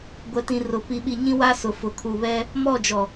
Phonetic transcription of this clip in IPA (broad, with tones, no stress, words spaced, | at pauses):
ɡʷɛ˨tĩ˨rʊ˨ pi˨ɓi˨ɲĩ˦ wa˦sʊ˨ fʊ˨kʰu˨βɛ˦ | mɔ˦˨d͡ʒɔ˨